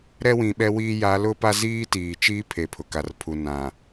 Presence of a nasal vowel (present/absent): present